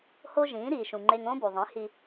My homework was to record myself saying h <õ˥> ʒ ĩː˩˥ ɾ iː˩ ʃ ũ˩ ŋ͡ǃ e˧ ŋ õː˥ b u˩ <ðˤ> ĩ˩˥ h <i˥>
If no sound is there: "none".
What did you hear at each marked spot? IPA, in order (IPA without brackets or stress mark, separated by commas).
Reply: o˥, ðˤ, i˧